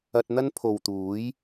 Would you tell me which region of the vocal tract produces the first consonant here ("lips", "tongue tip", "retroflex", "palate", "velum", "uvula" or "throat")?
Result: tongue tip